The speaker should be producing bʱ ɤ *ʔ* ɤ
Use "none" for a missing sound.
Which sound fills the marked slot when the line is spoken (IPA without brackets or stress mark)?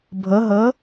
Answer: ɦ